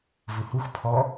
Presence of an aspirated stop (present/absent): present